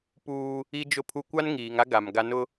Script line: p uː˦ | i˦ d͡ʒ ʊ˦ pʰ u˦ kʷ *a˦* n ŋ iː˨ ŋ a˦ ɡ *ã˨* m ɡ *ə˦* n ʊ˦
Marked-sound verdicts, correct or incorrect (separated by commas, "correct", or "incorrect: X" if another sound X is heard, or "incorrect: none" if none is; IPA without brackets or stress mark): correct, incorrect: a˨, incorrect: a˦